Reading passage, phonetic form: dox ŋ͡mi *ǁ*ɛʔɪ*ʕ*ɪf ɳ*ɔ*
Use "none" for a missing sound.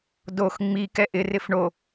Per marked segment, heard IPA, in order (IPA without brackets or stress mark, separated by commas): k, r, o